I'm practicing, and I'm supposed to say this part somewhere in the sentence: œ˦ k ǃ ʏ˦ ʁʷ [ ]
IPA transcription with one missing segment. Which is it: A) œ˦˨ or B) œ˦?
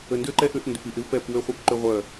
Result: A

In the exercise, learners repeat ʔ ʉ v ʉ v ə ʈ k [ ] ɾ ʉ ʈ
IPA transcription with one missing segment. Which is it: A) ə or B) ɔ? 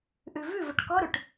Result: B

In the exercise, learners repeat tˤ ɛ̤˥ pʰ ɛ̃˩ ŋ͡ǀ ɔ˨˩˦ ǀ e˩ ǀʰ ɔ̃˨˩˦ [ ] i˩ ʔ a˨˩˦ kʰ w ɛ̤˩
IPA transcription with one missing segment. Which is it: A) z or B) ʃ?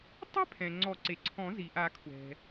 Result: A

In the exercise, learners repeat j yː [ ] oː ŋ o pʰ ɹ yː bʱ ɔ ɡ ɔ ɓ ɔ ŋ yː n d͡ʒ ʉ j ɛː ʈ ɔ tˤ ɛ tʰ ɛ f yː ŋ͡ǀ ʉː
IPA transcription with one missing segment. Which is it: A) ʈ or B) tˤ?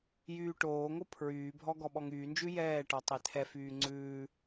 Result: A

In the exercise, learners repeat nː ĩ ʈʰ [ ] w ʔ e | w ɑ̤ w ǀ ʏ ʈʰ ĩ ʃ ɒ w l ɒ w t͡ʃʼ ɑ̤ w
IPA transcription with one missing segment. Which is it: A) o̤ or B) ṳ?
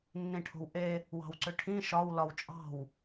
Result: A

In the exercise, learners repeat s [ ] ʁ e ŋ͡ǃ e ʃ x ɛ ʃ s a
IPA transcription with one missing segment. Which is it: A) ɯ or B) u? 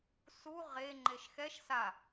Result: B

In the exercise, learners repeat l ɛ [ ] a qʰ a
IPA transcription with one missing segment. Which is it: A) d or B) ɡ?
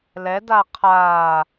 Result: A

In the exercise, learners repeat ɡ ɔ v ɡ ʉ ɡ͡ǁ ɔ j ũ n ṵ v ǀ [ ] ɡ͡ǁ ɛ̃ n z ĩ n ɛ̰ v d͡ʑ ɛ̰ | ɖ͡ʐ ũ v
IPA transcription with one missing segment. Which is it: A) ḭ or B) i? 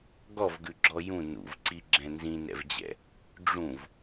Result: B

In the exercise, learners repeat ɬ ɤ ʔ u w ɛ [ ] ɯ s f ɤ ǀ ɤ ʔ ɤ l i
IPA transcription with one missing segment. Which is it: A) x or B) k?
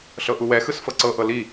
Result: A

